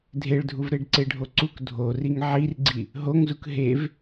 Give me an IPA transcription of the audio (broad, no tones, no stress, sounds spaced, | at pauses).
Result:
dʱ e ɭ dʱ u v ɾ e ɖ ǀ e ɖʱ o ǀ u k dʱ o r i ŋ ʕ i r ɡ͡ǀ i | ɦ o ŋ z u k ɦ e v